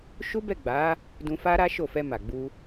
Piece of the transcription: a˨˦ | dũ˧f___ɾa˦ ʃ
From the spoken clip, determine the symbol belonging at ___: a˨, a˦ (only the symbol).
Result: a˦